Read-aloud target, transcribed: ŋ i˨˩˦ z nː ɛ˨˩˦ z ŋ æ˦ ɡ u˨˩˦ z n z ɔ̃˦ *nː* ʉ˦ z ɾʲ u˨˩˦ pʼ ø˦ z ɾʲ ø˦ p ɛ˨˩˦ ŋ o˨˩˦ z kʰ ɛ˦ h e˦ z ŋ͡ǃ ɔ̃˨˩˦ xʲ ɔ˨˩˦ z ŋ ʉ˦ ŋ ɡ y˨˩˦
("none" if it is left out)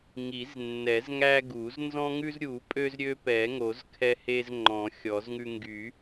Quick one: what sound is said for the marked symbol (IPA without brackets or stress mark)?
ŋ